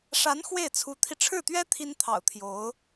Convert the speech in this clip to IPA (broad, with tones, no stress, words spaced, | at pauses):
ʂa˧˥n xwe˥˩ɪ̯t͡sʰu˧˥t̪ʰi˧ ʈ͡ʂʰɻ̩˥˩t̪ɥɛ˥ t̪ʰi˥nt̪ʰɑ̰˨˩ʊ̯t̪ʰjo˧˥ʊ̯